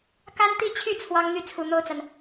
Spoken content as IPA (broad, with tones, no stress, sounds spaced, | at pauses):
k a˥ n t̪ i˥˧ t͡ɕʰ y˥˩ t͡sʰ w ɑ˥ ŋ n̪ y˥˩ t͡sʰ u˨˩ n̪ o˥˩ ʊ̯ t͡s a˩ n